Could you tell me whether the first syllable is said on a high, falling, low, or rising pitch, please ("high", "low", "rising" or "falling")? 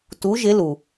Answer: rising